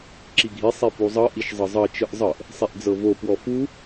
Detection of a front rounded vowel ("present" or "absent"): absent